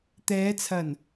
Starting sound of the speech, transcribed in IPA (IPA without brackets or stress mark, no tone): t̪